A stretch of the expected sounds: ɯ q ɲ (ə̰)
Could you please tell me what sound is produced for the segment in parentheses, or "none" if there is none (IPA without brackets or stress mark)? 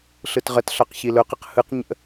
ə̰